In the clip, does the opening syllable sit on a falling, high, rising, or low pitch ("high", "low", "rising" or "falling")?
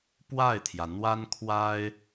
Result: falling